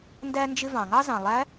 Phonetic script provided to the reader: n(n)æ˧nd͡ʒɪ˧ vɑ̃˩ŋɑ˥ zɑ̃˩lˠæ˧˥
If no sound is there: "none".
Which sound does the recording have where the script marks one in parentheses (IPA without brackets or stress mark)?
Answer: d